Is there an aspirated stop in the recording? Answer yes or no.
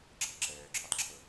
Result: yes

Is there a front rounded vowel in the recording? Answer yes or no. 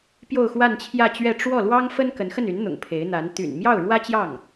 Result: yes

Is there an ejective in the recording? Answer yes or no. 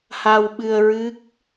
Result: no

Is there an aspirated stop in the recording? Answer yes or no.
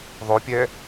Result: no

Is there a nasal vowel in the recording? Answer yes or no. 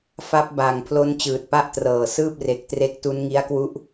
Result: no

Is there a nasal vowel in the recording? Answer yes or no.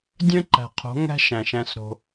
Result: yes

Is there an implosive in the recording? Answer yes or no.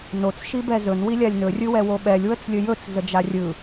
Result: yes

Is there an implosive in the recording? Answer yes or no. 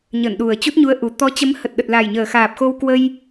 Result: yes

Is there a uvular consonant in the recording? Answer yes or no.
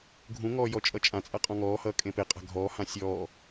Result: yes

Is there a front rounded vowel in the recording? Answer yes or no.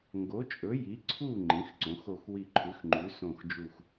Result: no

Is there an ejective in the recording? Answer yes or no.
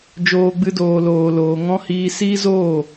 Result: no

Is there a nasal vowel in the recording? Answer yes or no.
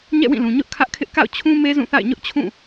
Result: yes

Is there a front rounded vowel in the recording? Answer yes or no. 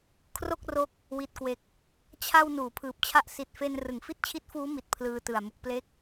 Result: no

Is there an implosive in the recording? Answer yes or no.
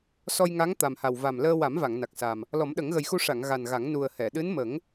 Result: yes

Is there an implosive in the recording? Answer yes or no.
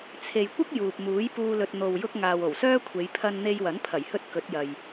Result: no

